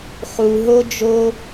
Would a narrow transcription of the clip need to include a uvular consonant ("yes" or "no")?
yes